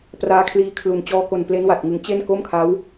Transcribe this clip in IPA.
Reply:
p r aː˦˥ kʰ l iː˦˥ kʰ l u˨˩ n t͡ɕ ɔː˧ k o˨˩ n p l e˦˥ n w a˨˩ t̚ ŋ ɯ˩˦ ŋ t͡ɕ e˥˩ n k o˥˩ m kʰ a˦˥ w

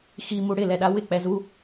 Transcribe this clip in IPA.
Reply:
x i m u ɽ ɪ l ɛ ɗ a w ɪ k͡p ɛ z u

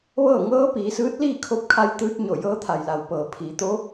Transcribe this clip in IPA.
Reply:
ʋ ɤː˥˨ ŋ ɤː˧˥ p iː˩˧ s ɯː˧˥ t̚ l iː˥˨ kʰ o˧˥ p̚ kʰ a˧ j t̪ ɯː˧ t̚ ɲ o˧˩ j ɤː˧˥ t̪ʰ a˩ j l a˩ w p ɤː˩ pʰ iː˩˧ t̪ o˧˥

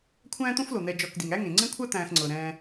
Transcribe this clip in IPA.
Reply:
kʷʰ æ̃ː˦ t̪ õ˦ f l o˩ n̪ ɛ˨ d͡ʒ ɔ˨ k d i˩ ŋ æ˥ ŋ ẽ˩ ŋ͡ǀ ẽ˥ kʷʰ a˥ t̪ æ̃ː˨ x ŋ͡ǀ ɤ˩ ɾ ɛ̃ː˨

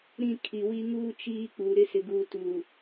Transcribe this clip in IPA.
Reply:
ɾ ĩ˦˨ kʰ i˨ w i˦ ŋ uː˦ t͡ʃ iː˦ k͡p uː˨ ɾ ɪ˦ s ɪ˨ ɡ uː˨ t uː˨

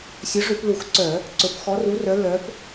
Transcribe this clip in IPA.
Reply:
sʲ ɵ˨˥ ʐ ʉ˧˩˧ p l u˧˩˧ x ǀ œ˧˩˧ | ǀ ɵ˨˥ p x ɔ˨˥ r u˨˥ r œ˨˥ l œ˨˥ p

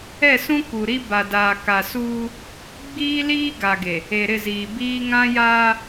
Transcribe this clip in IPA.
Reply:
ɛ˦˨ s ũ˦ k u˨ ɾ i˦ b a˨ d aː˨ k a˨ s uː˦ | ɡ͡b iː˦ l iː˦ ɡ a˨ ɡ e˨ | e˨ ɾ ɪ˦˨ z iː˨ b iː˦ ŋ ã˦ j aː˦

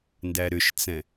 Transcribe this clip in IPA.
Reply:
n d æ ɾ ʏ ʃ t͡s ɛ̃

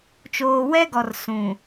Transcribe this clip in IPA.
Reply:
t͡ʃ oː˨ w ɛ˦ ɡ ɔ˨ r s ũ˨

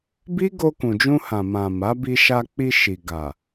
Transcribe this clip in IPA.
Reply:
b i˦ ɡ o˧ k ũ˨ d͡ʒ ũ˧ h ã˨ m ã˨ m a˨˦ b i˧ ʃ a˧ k͡p i˧ ʃ i˨ ɡ a˨

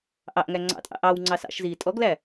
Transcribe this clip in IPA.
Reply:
ʔ ɑ ʔ ŋ æ ŋ͡ǀ ɑ̰ tʼ ɑ̰ ʔ ɑ w ŋ͡ǀ ɑ s ɑ̰ ʃ z iː tʼ ɔ ɡ l æ

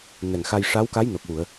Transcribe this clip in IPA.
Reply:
n ɛ˨˩ ŋ x a˧ j ʂ a˧˥ w k a˧˥ j n o˨˩ k̚ w u˨˩˨ ə̯

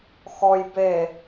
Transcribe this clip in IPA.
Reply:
x ɔ j b e

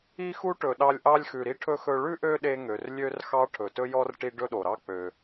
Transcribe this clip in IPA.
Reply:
i˥ x u˥ ʈ ɵ˨ ɗ ɑ˦ lʲ ʔ ɑ˥ lʲ x ʉ˨ ɾ i˥ ʈʰ ɵ˥ x ɵ˦ ɭ ʉ˥ ʔ ø˦ ɗ e˦ ŋ ø˩ r lʲ ø˥ r x ɑ˦ ʈʰ ɵ˩ t ɵ˥ j ɔ˥ r ʈ i˦ ɖ ɵ˥ ɗ o˩ ɾ ɑ˥ k͡p ø˩

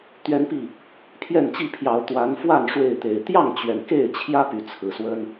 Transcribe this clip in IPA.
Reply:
t̪ ɥ ɛ˦ n p i˥˨ | pʰ j ɛ˥˨ n t͡ɕ i˥˨ pʰ j ɑ˨˦ ʊ̯ t̪ w a˨˦ n f w a˥˨ n ʂ w e˥˨ ɪ̯ t̪ e˨˩ ɪ̯ t̪ j ɑ˥˨ ŋ t͡ɕ ɥ ɛ˩ n k e˥˨ ɪ̯ t͡ɕʰ j ä˦ p y˨˦ t͡sʰ ɹ̩˨˩ s w ə˦ n

